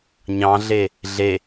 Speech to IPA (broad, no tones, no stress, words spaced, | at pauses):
ɲɑ̃ɮe | ɮe